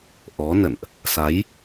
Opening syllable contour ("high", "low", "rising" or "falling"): rising